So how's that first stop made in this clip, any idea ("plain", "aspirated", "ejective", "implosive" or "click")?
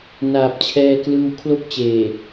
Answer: plain